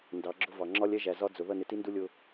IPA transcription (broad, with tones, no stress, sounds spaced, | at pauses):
n d ɑ˨˦ ɡ͡ǁ ʊ˦ v ɑ˨ ŋ͡ǁ ɒ˦ lʲ ɛ˦ ʒ æ˨ z ɒ˦ d͡z ʊ˨ ð ʌ˦˨ n ɪ˨ t i˦ n d u˦ lʲ ʊ˦